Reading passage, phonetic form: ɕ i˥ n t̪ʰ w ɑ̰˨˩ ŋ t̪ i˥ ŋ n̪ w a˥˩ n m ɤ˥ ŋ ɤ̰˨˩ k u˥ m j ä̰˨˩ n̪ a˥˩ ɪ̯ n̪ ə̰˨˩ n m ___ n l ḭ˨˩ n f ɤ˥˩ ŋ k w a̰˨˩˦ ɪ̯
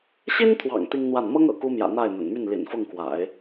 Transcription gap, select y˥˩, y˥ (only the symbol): y˥˩